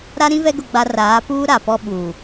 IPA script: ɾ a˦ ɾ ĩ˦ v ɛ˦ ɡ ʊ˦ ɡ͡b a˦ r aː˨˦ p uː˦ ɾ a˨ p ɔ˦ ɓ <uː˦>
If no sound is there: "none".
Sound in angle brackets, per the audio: uː˨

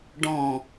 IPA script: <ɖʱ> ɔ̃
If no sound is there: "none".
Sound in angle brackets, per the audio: ɖ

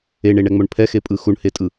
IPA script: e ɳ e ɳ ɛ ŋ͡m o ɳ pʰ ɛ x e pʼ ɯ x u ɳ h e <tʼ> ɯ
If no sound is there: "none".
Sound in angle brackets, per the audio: tʼ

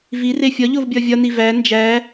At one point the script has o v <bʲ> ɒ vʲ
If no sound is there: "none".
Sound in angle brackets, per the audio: bʲ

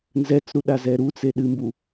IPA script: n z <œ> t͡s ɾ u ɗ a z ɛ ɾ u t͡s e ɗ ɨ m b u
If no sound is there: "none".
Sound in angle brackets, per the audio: ɛ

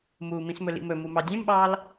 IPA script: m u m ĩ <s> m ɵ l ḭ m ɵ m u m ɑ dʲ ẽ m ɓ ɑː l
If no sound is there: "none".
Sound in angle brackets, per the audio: s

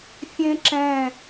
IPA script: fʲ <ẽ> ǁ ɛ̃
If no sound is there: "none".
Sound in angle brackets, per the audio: ẽ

